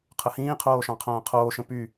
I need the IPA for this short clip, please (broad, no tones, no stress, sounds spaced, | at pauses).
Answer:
qʰ ə h ĩː qʰ oː ʃ ɑ̃ qʰ ɐ̃ː qʰ oː ʃ ə̃ p y